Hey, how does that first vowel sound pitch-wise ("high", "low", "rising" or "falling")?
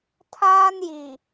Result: high